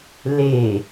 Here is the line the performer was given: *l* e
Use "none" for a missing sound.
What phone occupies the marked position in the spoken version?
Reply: l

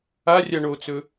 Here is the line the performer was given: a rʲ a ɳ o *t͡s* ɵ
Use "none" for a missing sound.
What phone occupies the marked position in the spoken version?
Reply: t͡s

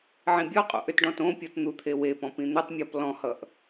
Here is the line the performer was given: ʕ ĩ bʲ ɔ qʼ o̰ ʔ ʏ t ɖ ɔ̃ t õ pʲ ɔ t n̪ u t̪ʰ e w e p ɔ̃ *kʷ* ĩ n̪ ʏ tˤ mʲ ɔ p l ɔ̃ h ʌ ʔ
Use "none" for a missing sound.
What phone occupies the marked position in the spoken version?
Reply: p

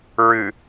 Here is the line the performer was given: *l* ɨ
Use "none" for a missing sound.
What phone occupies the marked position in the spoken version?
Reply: ɹ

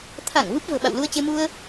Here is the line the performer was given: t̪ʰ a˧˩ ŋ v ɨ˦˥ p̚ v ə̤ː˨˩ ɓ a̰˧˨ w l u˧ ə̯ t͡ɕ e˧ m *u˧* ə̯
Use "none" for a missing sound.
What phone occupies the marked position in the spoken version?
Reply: u˧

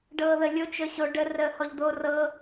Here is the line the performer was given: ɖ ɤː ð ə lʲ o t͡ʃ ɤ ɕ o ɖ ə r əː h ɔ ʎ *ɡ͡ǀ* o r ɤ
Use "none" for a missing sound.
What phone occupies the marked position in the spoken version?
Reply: d̪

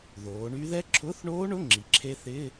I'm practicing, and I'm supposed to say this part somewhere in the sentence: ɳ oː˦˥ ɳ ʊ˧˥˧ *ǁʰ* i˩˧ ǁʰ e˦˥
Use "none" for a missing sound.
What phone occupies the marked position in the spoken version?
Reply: ŋ͡ǁ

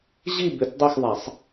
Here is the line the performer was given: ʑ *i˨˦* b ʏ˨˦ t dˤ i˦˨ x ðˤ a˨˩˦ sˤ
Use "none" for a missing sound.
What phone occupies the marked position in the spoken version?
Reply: i˦˨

